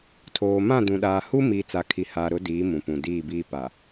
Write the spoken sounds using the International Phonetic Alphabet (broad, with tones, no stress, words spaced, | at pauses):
tʰoː˨mã˦˨dũ˨ɗaː˨ hu˦mi˨ t͡sa˨kʰi˨haː˨ ɾʊ˨˦ diː˨˦ mũ˨pũ˨diː˦˨biː˦ pa˨